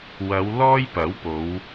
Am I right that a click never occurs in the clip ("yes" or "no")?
yes